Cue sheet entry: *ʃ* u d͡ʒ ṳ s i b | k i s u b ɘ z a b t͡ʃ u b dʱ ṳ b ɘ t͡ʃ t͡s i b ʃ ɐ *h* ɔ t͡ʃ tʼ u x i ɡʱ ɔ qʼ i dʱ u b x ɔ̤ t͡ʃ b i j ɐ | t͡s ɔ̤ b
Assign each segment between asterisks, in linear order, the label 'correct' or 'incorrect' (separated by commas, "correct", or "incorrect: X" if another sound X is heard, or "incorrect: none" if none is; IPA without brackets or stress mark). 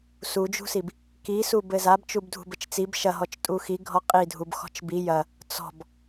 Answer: incorrect: s, incorrect: ɦ